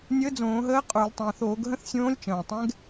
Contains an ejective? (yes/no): yes